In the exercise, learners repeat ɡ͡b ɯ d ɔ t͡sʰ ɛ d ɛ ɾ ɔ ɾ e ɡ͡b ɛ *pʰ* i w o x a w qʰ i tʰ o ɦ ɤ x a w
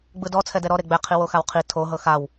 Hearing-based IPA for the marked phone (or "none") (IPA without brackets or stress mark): qʰ